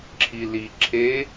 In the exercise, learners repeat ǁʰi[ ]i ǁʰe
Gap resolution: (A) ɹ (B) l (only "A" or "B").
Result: B